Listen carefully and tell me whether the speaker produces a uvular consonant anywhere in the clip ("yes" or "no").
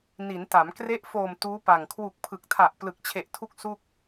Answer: no